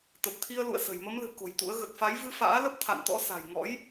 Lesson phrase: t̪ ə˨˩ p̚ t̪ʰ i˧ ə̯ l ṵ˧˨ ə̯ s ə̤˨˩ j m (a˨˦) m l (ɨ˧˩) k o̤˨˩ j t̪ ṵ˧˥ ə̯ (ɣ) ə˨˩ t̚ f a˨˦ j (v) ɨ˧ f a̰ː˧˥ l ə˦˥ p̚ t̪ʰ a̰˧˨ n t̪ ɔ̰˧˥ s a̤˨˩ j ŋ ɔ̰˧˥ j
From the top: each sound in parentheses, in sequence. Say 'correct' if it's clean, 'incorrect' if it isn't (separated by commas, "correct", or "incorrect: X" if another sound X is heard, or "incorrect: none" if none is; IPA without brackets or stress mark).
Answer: incorrect: ə˨˦, incorrect: ɨ̤˨˩, correct, correct